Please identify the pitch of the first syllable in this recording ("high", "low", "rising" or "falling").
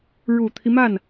low